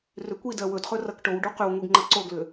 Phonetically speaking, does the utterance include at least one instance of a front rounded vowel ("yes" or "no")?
yes